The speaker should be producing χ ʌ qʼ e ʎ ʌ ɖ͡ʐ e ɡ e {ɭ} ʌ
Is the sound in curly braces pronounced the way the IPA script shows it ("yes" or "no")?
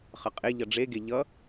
no